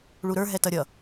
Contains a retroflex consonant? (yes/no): yes